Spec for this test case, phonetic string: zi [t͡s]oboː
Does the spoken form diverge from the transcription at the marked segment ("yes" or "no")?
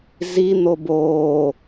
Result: yes